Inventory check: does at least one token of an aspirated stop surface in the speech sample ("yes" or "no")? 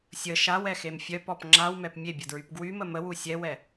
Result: no